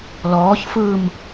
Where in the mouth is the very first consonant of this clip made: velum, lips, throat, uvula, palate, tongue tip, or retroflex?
tongue tip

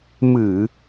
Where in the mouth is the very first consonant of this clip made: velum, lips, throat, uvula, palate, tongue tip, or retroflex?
lips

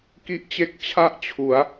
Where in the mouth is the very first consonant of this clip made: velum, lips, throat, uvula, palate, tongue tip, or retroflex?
velum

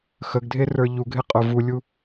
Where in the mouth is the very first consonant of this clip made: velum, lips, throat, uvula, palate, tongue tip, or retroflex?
velum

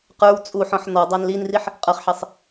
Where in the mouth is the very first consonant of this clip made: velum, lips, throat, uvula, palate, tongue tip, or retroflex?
uvula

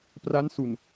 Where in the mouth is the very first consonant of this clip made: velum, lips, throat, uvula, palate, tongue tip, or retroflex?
lips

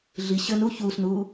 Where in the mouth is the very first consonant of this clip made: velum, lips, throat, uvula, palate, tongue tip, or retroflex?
tongue tip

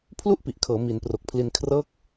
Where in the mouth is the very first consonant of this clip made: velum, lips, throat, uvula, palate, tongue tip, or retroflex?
lips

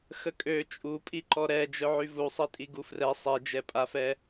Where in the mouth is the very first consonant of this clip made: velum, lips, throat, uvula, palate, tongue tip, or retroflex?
velum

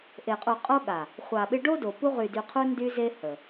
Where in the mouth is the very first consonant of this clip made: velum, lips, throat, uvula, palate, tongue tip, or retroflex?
throat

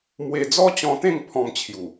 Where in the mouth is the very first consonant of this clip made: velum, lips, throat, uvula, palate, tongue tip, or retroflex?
lips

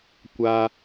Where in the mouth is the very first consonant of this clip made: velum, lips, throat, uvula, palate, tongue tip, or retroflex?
velum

